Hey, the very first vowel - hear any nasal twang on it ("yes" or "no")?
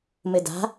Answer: no